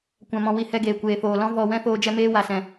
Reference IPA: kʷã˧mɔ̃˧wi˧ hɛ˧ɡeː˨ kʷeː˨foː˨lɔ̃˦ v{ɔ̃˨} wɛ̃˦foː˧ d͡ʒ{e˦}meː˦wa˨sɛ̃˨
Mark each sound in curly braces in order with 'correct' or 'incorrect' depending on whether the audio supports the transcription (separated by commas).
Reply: incorrect, incorrect